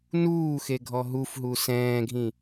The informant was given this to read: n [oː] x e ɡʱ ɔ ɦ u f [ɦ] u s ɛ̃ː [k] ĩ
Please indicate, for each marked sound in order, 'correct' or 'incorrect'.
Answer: incorrect, correct, incorrect

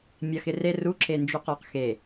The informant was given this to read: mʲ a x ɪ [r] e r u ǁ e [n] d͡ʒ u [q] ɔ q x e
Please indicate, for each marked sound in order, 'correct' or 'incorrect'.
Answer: correct, correct, correct

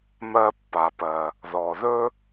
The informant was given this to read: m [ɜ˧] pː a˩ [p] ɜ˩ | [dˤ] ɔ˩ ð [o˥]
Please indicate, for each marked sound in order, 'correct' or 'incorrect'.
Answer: correct, correct, incorrect, incorrect

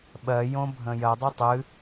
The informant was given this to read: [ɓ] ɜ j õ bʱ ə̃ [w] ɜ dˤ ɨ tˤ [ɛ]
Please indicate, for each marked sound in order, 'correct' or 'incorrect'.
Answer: correct, incorrect, incorrect

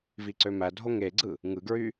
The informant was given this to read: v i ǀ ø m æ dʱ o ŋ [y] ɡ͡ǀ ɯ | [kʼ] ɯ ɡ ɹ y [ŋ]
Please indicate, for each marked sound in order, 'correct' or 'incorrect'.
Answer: incorrect, incorrect, incorrect

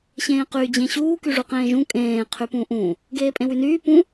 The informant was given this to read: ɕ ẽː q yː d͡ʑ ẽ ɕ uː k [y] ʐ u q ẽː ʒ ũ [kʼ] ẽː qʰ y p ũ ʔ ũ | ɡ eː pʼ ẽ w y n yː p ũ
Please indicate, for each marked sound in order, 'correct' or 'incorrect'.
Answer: correct, correct

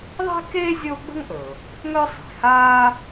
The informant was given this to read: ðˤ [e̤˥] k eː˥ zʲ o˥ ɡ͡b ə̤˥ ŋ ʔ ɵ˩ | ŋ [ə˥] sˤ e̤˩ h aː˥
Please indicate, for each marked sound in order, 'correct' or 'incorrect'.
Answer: correct, incorrect

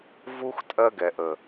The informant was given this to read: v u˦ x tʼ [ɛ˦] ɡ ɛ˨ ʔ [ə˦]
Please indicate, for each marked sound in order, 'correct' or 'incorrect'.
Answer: incorrect, incorrect

